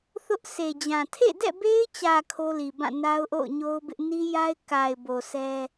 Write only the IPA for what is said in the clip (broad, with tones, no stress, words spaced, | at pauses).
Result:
θʊ˦ʔ se˨d͡ʑã˨ tʰḛ˦˨dɛ̰˦˨be˦ɪ̯t͡ɕä˨ kʰo˦li˨bã˦˨ na˦ʊ̯ʔo̰˦˨ʊ̯ɲo˦ʊ̯bɪ˦ʔ ni˦ja˦ɪ̯ ka˨ɪ̯ bo˨sɛ˦